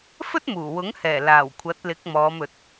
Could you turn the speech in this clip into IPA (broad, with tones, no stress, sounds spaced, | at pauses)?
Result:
f ɵ˥ t̚ m uː˨˩ w ʊ˨˥ ŋ h ɛː˨˩ l aː˨˩ w kʷʰ ɐ˨˥ t̚ l ɪ˨˥ k̚ m ɔː˨˧ m ɵ˨˥ t̚